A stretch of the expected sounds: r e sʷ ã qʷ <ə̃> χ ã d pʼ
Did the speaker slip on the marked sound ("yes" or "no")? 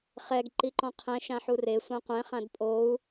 yes